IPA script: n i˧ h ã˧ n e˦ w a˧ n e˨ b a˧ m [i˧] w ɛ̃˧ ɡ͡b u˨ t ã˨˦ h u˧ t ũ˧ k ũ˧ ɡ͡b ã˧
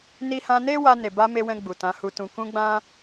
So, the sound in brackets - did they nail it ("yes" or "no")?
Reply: no